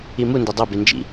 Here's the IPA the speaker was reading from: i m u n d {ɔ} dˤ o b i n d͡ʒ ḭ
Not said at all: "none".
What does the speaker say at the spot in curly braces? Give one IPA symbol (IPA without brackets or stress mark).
o